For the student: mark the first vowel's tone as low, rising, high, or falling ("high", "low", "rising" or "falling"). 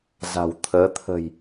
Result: low